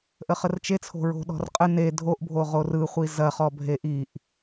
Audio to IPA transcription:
ʔ ə χ ə r t͡ʃ e t͡sʰ o̤ ɹ o̤ ɗ ɔ̤ r qʼ ə n e dʱ o ʔ bʱ o ʁ o r ɯ χʷ i z ɐ χ ɔ bʱ e ʔ i ʔ

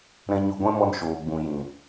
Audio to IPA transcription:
ɾ ɛ̃˧ ɲ o˧ ɡʷ ɛ̃˦ m ɔ˧ n ʃ oː˨ ɡ͡b ũ˨ j ĩ˨

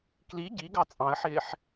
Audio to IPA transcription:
k l i ɟ i ɡ ɑ t͡sʼ ɑ̃ ə̯ ħ ɪː ħ

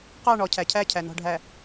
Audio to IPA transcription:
q ɑ˦˨ ɳ ɔ˨ cʰ æ˨ cʰ æ˦˨ cʰ æ˨ n ɔ̤˨ ɖʱ æ˨

